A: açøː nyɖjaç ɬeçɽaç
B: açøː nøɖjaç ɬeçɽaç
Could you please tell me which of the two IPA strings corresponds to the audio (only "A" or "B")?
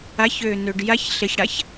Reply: B